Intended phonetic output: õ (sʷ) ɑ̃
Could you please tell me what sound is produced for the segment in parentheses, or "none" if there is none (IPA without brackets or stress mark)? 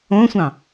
sʷ